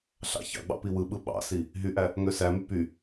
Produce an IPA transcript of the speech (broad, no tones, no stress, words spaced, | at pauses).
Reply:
ɬɑ̰ çɑ̰ɡ͡bɑ̰ piwɯɓɯ ɓɑ̰si | ɦyʔæ | ŋøsæmy py